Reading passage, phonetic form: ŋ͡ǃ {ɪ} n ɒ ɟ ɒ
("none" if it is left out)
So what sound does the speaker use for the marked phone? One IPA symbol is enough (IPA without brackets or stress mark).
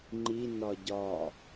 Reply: i